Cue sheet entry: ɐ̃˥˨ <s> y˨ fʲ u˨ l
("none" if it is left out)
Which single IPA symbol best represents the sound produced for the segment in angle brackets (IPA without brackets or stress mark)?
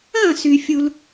s